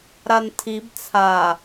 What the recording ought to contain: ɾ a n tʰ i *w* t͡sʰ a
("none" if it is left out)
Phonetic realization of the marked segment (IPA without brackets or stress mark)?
b